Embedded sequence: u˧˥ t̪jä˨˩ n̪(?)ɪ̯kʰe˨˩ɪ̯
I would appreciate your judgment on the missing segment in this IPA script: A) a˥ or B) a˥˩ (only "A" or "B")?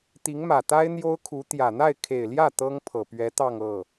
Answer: B